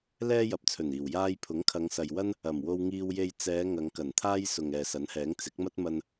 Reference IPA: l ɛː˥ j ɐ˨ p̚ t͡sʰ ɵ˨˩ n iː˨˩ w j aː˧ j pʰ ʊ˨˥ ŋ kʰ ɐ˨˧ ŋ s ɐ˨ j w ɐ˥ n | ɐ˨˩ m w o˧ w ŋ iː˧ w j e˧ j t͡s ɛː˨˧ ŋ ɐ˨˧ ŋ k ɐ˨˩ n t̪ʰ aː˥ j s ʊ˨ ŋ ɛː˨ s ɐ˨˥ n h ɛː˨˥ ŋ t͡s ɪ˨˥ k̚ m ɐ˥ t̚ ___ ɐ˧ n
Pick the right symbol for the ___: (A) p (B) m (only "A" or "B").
B